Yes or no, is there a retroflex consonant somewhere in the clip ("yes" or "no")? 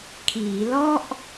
no